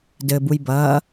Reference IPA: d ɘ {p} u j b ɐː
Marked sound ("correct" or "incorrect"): incorrect